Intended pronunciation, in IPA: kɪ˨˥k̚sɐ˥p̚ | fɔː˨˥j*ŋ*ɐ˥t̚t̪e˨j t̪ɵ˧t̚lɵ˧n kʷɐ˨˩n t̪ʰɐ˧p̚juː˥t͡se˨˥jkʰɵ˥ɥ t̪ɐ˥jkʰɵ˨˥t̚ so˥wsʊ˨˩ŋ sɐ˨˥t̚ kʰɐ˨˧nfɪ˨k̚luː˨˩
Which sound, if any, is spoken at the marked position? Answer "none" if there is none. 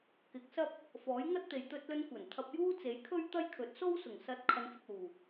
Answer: ŋ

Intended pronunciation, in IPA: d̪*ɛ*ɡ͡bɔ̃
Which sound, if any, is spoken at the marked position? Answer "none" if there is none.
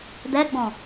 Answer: ɛ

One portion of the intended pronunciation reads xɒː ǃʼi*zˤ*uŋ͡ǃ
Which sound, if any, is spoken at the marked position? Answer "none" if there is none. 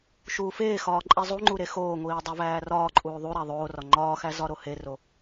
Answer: zˤ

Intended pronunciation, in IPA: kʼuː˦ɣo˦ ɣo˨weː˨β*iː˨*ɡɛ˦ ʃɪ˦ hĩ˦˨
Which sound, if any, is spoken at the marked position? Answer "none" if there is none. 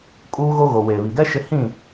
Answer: i˨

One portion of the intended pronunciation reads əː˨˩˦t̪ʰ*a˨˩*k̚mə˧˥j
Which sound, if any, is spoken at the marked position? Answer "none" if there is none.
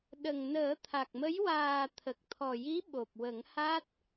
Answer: a˨˩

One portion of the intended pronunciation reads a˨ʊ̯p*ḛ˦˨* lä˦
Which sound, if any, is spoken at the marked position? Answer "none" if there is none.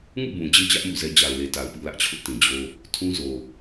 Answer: ḭ˦˨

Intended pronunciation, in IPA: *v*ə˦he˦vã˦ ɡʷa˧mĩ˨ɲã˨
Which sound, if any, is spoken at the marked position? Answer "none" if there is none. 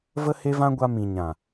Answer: v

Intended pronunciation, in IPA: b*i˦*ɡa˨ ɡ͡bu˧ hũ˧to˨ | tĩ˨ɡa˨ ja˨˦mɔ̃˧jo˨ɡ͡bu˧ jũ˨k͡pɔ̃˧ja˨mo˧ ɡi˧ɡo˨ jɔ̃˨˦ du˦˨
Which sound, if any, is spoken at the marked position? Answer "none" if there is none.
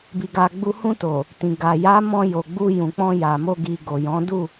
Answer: i˨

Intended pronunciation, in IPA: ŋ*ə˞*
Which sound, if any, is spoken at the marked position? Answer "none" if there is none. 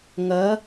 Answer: ɐ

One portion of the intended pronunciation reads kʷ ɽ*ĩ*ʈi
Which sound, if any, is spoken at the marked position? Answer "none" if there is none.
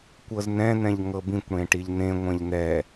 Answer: ẽ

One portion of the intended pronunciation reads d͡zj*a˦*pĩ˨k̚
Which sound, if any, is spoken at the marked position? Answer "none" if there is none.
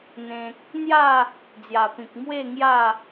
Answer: a˨˩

